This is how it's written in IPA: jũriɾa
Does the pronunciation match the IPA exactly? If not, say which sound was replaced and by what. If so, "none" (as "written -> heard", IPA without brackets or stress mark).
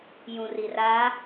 ɾ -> r